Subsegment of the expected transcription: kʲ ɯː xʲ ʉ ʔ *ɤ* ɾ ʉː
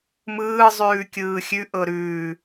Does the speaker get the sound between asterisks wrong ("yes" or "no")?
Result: no